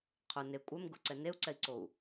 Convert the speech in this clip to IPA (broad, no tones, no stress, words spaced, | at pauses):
qʰʊ ne kʷʼɛm ɡʊǀɛ neu̯ǀɛi̯ǀou̯